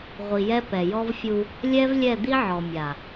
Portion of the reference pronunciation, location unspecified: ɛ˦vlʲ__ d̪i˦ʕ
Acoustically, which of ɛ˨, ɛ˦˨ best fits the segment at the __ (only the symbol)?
ɛ˦˨